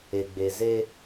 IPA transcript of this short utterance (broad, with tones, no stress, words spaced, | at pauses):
e˨ ɡ͡be˨ze˦